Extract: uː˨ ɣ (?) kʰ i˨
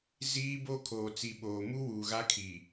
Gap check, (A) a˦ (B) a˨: A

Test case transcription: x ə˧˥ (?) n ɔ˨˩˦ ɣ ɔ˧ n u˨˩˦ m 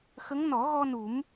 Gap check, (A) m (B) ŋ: B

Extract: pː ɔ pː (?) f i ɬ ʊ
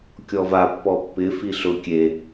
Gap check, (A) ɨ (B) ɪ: B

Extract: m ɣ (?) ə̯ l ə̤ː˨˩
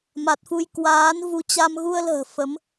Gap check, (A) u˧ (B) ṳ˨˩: A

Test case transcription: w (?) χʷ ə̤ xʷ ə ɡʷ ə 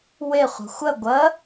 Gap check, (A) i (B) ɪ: B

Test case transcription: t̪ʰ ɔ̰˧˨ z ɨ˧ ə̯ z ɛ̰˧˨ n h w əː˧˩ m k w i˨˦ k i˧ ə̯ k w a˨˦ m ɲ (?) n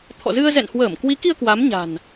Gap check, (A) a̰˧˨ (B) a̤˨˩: B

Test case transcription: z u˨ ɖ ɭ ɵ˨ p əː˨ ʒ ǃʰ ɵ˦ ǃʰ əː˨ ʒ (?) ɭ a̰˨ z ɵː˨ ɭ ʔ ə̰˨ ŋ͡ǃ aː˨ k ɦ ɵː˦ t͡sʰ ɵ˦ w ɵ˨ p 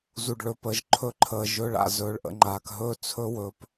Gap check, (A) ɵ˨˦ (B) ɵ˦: B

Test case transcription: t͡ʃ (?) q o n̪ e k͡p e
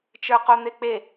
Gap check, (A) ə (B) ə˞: B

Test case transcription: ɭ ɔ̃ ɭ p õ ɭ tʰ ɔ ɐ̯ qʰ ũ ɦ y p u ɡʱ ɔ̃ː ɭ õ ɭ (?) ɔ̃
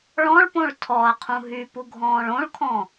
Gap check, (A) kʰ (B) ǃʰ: A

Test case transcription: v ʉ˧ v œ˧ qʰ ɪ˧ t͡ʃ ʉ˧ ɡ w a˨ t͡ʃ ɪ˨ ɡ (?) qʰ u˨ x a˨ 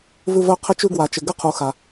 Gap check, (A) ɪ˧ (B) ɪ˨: A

